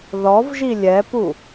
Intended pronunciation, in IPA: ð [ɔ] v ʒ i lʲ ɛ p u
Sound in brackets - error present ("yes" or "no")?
no